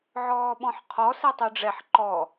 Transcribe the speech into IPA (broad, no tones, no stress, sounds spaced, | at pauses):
ʕ ɔː ɓ ɔ̃ ħ qʰ ɔ s ɛ tˤ ʉ ɖ͡ʐ ɛ ħ ǃ ɔ